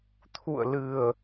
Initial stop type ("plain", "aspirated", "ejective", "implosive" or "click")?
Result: aspirated